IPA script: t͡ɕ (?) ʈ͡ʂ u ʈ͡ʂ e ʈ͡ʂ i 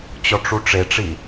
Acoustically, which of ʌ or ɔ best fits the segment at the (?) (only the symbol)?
ɔ